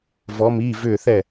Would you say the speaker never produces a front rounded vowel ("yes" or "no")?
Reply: no